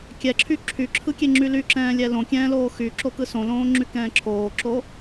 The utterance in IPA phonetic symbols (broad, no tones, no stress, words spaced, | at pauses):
kʲɛǁʰy ǁʰyǁʰɯkʲeŋ͡ǁy lyǁɛ̃ːlʲɛ lõkʲɛ̃ːloː xyǁokɯ sõlõːŋ͡ǁykɛ̃ː ǁʰoːǁo